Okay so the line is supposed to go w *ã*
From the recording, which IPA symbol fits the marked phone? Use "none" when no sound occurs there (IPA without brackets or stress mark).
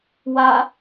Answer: a